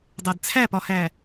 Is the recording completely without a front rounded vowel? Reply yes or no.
yes